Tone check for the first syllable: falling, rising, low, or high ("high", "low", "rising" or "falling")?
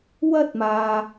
high